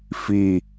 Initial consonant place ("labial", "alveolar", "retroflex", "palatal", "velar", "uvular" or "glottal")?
labial